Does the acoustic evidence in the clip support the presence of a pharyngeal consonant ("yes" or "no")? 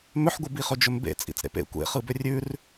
yes